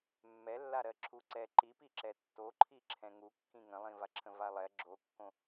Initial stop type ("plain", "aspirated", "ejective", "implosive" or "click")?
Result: click